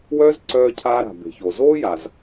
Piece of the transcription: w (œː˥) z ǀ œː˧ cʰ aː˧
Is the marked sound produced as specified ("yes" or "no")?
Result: yes